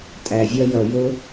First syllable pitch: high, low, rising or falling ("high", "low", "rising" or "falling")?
low